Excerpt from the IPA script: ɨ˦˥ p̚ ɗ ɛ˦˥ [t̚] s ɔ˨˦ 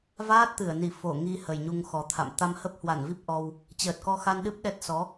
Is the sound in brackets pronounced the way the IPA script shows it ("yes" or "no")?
yes